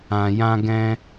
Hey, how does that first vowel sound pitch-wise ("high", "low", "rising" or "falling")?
low